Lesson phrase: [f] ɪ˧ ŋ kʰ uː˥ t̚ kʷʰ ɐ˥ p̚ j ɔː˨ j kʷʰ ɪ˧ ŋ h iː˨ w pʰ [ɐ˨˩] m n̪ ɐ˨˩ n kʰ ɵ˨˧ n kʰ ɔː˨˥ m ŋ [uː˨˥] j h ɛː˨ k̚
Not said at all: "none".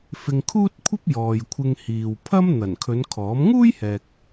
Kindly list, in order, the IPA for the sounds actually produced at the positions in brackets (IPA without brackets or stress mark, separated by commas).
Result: f, ɐ˥, uː˥